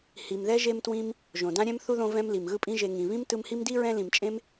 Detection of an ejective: present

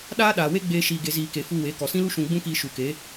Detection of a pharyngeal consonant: absent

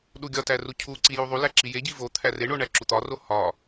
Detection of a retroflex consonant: present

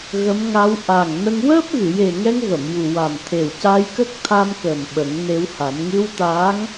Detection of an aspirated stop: present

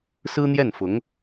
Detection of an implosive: absent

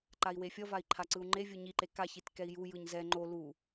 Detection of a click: present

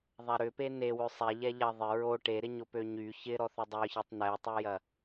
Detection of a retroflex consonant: present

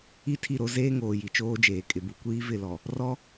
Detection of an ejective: present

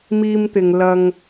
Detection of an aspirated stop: absent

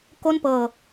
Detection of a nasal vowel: absent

